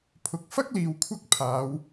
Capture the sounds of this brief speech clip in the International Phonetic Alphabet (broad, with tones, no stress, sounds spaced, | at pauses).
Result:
pʰ ʊ˨ k̚ f ɐ˥ k̚ l iː˨ w kʷʰ ɐ˥ k̚ pʰ aː˨˧ w